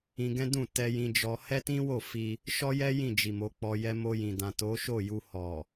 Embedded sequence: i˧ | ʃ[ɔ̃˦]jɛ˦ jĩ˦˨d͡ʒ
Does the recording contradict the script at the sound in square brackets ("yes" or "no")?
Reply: yes